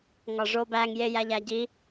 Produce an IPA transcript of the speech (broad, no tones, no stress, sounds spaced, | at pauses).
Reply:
ŋ ɒ ʐ o b æ ŋ j e j æ ʎ æ ɟ i